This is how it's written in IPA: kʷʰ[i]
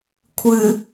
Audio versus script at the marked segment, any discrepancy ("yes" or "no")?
yes